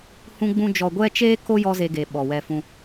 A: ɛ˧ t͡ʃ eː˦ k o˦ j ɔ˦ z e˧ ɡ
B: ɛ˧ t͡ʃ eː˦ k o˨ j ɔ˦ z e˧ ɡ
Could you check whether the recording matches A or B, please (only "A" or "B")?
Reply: A